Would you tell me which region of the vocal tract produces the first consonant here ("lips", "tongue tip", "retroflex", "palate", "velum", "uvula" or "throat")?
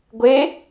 velum